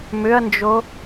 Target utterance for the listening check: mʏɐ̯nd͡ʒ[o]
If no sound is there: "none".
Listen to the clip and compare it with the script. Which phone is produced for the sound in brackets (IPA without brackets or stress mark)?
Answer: o